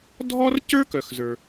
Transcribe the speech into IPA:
dʱ ɔ˥ r c ə˞˥ k œ˩ x z ə˞˩

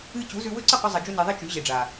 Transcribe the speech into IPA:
ɨ˧ t͡ɕ u˨˦ z ʉ˧ w ɵ˦ ǀ ɨ˦˨ q ɵ˧ zˤ ɐ˨ d͡ʒ u˧ n i˨ ðˤ i˦ t͡ʃ ʉ˨˦ ʑ e˨ ɖ͡ʐ a˨

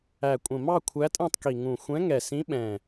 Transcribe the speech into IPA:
æ˨˩ kʷʼ ə̃˨˩ m ɑ˥˧ kʷʰ æ˧˥ tʼ ɛ̃˥˧ tˤ k i˨˩ ŋ ũ˨˩ xʷ ɛ̃˧˥ ŋ ɛ˨˩ s ĩ˧˥ ɓ ɛ̃˨˩

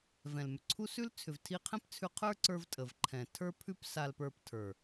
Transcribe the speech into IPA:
v ɛ̃˨ l m ʏ˨ ǀʰ u˦ s ʉ˦ l t͡sʰ ʏ˨ v tʰ i˧ qʰ ɛ̃˦ p t͡sʰ ʉ˧ qʰ ə˞˦ ǀ ə˞˧ v tʼ ə˨ v ǃʰ ɛ̃˨ tʰ ə˞˦ pʰ ʉ˦ p s a˧ l p ə˞˧ p tʰ ə˞˨

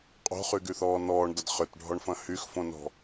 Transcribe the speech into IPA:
qʼ o̤ χ y ɡ y θ ɔː n ɔː ɳ d ɐ d χ ʏ t ɖʱ ɔ ɳ f ɐ̃ h y x f õ n ɔ̤

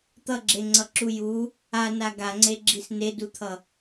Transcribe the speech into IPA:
t̪ ʌ ɡ͡ǁ e ŋ͡ǀ ʌ ǁ u j u | a n a ɡ a ŋ͡ǀ e ɡ͡ǁ i s n e d u t̪ʰ ʌ

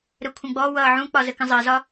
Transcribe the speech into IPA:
ɾ ə kʷʰ ə̃ ɡ͡b ɔ w ʌː ʕ ũ k͡p ɒ z ə k ə̃ zˤ ɜ z ɒ

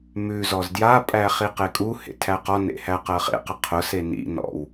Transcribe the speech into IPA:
m ʉ z ɔ z d j a pʼ æ χ i q e kʼ u h ḛ tʰ æ q ɔ n ḛ h æ q ɜ χ ḛ q ə qʰ ʊ s e n ḭ n ɔ̰ w

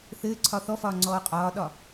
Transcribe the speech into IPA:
θ ɘː ǀʰ ɒ θ ɔ f ɒː ŋ͡ǀ ɔː qʼ ɒː ɗ ɒ

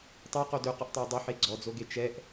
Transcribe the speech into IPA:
tˤ ø q o d ø q ɵ ʔ tˤ œ i̯ dˤ ɵ ħ e ɡ͡ǀ ɔ d͡z o ɡ e t͡ʃ ɛ ʔ

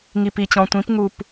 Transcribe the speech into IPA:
ŋ i˨ p i˨ t͡ɕ ɔ̃˨ tʷ ĩ˨˦ p ŋ u˨ p

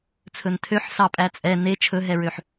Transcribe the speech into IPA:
t͡sʰ ɵ n tʰ ø ħ s ɑ pʼ æ t͡sʼ ɛ n e t͡ʃʰ ɵ ɦ ɛ ɹ ø ħ

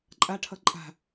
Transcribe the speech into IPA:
ǃʼ a ʈʰ ʌ ǃʼ a̤

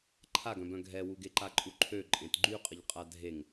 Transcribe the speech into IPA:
ǃʰ a ɡ œ̃ b œ̃ ɡʱ ɛ w u ɡ e ǃ a ǃʼ u ǃʰ ø ǃʼ ẽ t ɡ͡ǃ y qʼ ə ʎ qʼ a dʱ e ŋ

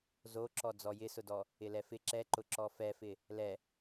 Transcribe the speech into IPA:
z o ǁ ɔ d͡z ɔ j ɪ s ʊ d ɔ | ɪ l ɛ f ɪ ǁ ɛ ǃ ʊ ǁ ɔ f ɛ f ɪ | l ɛ

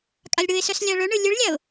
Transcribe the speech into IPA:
kʼ a lʲ ɽ ɯ ɪ̯ s œ s lʲ a ɭ ɵ ɳ ɯ lʲ ɯ ɭ lʲ a ʊ̯

